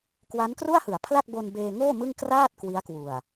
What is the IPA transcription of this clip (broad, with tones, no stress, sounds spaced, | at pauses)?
k w a˦˥ n k r u˥˩ a̯ h ɯ˩˦ a̯ pʰ l a˥˩ k̚ b o˧ n b eː˧ ŋ oː˥˩ m ɯ˥˩ ŋ k r aː˥˩ t̚ k w i˦˥ a̯ k w u˨˩ a̯